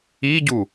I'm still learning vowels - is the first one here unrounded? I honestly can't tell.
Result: yes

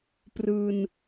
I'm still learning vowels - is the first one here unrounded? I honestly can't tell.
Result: yes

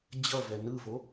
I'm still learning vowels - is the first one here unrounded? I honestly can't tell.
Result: yes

